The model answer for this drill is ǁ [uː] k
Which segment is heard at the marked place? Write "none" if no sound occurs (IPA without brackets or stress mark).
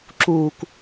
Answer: uː